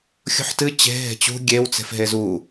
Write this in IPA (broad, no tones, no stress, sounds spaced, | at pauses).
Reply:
xʲ ṳ ħ t ɨ t͡ɕ e̤ ɦ e̤ t͡ɕ ṳ ɡʲ e w t͡s e̤ f ɦ e z u